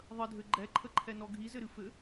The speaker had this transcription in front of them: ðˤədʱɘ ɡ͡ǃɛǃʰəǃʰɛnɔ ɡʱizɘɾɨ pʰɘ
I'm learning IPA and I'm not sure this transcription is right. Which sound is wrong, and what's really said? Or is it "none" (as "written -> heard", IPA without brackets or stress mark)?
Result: pʰ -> f